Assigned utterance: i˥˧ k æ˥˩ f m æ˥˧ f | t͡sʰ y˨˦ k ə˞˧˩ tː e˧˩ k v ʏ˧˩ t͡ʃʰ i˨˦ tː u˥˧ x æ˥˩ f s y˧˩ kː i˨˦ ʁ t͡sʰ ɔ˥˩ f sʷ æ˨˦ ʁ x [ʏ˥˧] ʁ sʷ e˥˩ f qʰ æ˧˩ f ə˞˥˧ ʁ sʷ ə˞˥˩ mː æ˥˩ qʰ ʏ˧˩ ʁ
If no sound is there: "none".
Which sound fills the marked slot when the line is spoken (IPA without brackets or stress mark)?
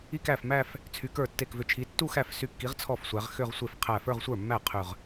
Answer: ʏ˥˧